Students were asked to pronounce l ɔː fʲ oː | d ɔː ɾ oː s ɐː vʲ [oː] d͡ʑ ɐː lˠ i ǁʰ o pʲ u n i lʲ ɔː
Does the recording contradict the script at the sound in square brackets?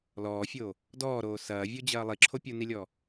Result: yes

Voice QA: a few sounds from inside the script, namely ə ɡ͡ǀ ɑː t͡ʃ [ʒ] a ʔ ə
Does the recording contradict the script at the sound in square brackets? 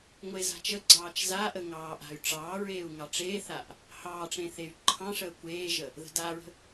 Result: yes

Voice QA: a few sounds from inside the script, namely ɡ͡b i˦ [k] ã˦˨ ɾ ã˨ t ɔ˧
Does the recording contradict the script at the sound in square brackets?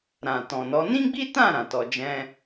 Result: yes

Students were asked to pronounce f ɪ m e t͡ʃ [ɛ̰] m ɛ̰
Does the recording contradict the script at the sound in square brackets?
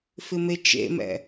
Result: yes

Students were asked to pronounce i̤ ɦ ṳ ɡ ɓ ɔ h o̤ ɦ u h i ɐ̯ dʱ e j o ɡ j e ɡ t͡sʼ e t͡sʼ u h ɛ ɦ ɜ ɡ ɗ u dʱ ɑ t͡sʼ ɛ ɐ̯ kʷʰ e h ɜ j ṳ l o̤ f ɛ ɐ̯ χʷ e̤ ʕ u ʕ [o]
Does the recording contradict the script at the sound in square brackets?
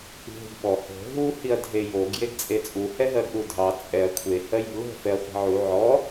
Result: yes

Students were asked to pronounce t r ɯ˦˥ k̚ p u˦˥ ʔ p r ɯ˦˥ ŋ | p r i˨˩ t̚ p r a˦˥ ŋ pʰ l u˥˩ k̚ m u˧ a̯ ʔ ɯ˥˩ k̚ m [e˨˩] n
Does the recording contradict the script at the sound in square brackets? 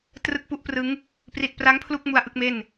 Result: yes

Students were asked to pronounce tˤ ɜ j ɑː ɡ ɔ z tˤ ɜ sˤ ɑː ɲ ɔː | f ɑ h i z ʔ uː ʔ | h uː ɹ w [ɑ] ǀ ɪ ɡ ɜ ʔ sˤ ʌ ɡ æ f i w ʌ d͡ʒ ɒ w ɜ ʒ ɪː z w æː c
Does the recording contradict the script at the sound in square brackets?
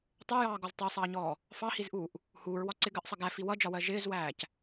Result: yes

